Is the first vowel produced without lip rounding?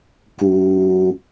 no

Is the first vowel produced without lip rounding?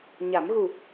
yes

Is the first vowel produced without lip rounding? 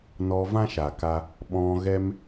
no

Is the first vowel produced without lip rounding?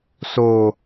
no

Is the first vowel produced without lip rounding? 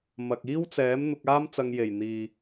yes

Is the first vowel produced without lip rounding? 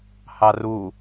yes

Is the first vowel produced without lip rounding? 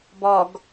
no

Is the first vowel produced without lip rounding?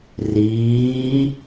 yes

